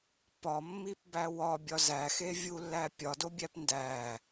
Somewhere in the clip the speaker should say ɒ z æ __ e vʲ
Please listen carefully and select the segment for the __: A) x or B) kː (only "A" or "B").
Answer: A